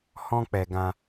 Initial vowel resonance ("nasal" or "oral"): nasal